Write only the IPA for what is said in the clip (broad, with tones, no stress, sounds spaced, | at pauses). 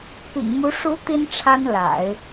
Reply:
p ḭ˨˩ ŋ m u˧˥ ʂ u˧˥ t̪ i˥ n ʈ͡ʂʰ a˥ n l a̰˨˩˦ ɪ̯